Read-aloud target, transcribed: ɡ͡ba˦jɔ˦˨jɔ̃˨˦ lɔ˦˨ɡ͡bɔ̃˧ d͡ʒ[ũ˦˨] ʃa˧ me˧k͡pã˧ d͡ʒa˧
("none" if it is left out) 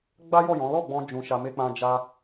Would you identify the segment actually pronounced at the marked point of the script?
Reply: ũ˦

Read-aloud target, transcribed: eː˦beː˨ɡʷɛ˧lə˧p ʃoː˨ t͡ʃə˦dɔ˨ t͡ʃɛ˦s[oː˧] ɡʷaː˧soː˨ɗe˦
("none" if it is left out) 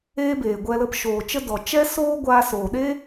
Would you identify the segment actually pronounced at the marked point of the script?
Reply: oː˦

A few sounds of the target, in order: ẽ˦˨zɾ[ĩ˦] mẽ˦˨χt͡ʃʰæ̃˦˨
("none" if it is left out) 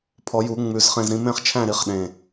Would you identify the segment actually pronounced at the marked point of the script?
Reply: ĩ˦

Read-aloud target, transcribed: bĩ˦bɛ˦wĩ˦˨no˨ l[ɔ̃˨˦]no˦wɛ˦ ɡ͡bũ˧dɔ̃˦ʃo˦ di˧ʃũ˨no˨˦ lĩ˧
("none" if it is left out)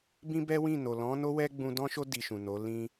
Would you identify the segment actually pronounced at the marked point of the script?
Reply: ɔ̃˨˦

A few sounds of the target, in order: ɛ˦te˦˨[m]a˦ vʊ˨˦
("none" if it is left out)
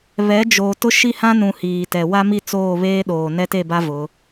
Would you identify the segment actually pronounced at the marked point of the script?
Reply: b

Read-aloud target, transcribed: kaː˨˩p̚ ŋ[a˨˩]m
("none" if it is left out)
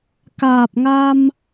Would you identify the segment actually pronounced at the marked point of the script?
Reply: a˧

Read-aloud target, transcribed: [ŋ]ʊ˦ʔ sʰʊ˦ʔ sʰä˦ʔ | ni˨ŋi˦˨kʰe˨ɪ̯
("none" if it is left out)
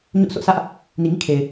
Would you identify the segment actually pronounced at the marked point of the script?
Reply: ɲ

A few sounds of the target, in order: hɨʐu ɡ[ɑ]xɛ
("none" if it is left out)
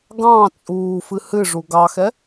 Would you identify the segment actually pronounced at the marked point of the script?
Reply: ɑ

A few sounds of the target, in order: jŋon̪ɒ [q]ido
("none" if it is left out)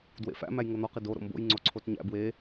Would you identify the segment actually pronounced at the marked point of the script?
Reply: q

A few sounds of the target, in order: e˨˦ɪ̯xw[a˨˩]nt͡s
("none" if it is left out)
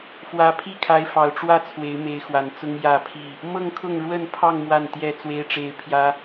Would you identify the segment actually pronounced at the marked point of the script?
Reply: a˨˩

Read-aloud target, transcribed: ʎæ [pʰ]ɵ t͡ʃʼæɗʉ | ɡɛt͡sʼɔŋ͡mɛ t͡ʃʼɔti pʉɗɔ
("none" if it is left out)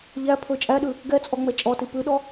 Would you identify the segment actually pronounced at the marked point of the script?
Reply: pʰ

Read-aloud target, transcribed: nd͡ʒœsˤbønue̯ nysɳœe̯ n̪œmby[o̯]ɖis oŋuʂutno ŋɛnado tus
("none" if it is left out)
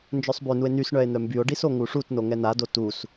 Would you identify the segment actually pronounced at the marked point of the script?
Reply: o̯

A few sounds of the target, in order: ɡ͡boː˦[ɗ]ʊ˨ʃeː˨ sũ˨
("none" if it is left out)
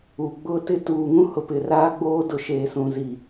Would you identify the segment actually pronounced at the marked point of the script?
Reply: d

